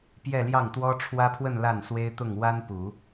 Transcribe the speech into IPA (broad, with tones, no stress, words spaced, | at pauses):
pjɛ˥˧ljɑ˥˩ŋt̪wɔ˥ ʈ͡ʂʰwä˥pʰwə˥˧n la˥˩nswe˥ɪ̯t̪ʊ˥˩ŋ wa˥npu˨˩˦